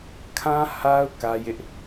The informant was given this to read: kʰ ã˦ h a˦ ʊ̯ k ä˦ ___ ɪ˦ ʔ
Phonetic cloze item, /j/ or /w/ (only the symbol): j